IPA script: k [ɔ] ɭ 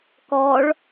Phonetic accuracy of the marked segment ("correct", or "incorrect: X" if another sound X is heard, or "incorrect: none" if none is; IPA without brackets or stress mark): correct